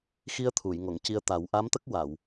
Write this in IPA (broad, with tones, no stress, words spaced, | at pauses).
xi˧ə̯t̪ʰu˨˩˨j ŋo˨˩˨ŋci˧ə̯ t̪a˨˩˦w ʔa˧˥mt̪ə˦˥k̚ wa˨˩˨w